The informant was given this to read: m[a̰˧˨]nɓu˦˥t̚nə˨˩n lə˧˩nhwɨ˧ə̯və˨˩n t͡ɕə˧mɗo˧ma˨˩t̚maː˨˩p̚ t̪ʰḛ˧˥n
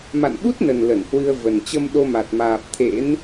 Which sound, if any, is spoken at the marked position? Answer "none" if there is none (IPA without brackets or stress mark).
a̰˧˨